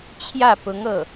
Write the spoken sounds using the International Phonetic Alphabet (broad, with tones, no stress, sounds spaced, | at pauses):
t͡ɕʰ j ä˥˩ p ʊ˧˥ ŋ ɤ˥˩